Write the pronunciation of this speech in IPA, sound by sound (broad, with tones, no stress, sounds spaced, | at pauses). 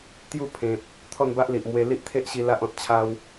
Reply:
t̪ j u˥˧ pʰ ẽ˨ p̚ | t̪ʰ ɔ˥˧ n b a˦ ʔ l i˨ ʔ m w e˧ l i˦ ʔ t̪ʰ e˦ ʔ ɕ i˧ l a˦ ʔ ɔ̃˨ t̚ t͡ɕʰ a˦ w